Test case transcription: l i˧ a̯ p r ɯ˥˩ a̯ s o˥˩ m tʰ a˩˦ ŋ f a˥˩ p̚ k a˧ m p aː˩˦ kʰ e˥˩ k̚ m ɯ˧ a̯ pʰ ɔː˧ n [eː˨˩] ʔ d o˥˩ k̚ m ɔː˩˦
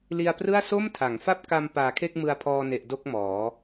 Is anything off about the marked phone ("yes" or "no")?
yes